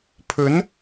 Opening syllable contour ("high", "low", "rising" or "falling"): rising